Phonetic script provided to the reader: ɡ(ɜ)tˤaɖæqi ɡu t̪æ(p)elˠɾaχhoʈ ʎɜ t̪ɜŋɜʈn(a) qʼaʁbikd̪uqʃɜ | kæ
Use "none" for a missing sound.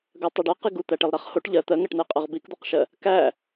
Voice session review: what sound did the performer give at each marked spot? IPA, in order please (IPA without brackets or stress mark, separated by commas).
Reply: ɜ, ʈ, æ